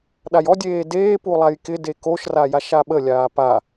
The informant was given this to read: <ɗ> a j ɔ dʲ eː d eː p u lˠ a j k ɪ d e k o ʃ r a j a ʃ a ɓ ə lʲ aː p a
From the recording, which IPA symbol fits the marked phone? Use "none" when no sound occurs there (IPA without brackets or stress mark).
ɗ